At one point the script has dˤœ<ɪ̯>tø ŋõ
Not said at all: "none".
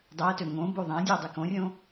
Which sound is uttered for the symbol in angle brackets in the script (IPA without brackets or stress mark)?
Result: ə̯